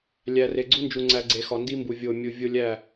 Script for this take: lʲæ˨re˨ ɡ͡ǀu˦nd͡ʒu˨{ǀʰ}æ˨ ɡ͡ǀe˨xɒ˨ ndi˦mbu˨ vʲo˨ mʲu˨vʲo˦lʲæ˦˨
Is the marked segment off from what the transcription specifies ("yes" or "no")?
yes